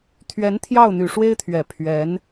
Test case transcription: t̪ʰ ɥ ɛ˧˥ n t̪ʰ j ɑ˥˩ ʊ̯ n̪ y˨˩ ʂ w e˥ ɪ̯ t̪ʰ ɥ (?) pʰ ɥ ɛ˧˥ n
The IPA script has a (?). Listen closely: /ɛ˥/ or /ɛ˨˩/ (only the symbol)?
ɛ˨˩